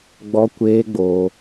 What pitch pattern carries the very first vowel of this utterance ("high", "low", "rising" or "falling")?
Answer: high